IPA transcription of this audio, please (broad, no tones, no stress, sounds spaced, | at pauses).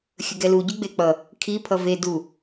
xʲ ə ɡ ɛ l u ɟ y ɡ͡b e k͡p ʌ | kʰ i pʰ ʌ v e d u